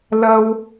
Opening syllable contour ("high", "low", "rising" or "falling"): high